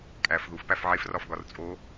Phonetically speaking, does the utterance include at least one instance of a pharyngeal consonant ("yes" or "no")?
yes